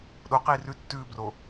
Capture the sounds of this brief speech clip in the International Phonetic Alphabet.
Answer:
ɗoqiː rʉ tːʉːbro

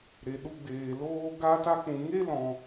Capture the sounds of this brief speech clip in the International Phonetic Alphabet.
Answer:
ɾe˨ɗu˧ɡ͡beː˨ loː˧ ɡaː˧ta˧k͡pũ˨ŋe˦ lɔ̃˧

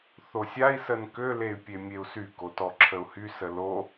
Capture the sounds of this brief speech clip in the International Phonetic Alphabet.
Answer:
θosʲai̯ sənkø ley̯pʲemʲeu̯sy kotɔǁʰəu̯hy səlo

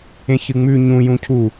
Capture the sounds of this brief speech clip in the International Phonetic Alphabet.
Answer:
ẽçɨŋ͡mʉ ɲũ jũcʰu

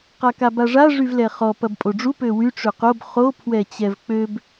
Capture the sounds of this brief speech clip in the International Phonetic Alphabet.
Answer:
qakabaʐa ʐyvlɛχɔ pɐbpʼoɖ͡ʐu pøwy ʈ͡ʂøqob χo pʰwɛt͡ɕɛvk͡pøb

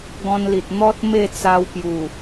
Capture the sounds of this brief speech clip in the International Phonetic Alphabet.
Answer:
ɡɔ̃˧nli˨t̚ n̪ɔ˦t̚ me˥˧t͡sa˧wpju˨˩

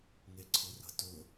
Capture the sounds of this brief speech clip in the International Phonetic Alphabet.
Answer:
ŋeǀʰɤrə̤ tɵ

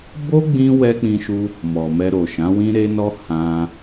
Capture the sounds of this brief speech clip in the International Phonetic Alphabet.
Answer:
bo˦ɡ͡bĩ˧ wɛ˦k͡pĩ˧ʃu˧ | mɔ˨mɛ˧ɾo˨ ʃã˨˦wĩ˦ɾe˦nɔ˦ hã˧

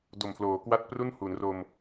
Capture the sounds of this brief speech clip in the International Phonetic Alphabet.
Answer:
do˨˩mpʰloː˩˦kwa˥˩t̚ pru˥˩nhu˩˦nro˧m

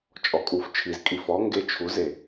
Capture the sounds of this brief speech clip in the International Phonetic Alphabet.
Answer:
t͡ʃʼɔkʼuft͡ʃʰiz kʼifɔ ŋɡet͡ʃʰuze

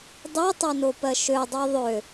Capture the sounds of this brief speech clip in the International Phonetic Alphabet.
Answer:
dˤitˤonopɜ ʃødˤo ðˤø

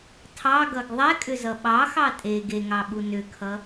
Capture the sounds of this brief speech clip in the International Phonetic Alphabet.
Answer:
tʰɑɡʌɡ ðˤɛkʼʏzʌ ɓɑxɑ tʼe ɡeŋɑɓu nʏkʰʌ

